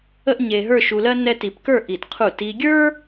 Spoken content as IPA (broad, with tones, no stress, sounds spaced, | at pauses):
ə˥ ʔ ɲ e˧ ɦ ə˞˥˧ ʃ u˧ l ɜ˥ n ɛ˥ t i˧ p k ə˞˥˧ ʔ i˧˩ t qʰ u˧˩ t i˧ ɡʲ ə˞˥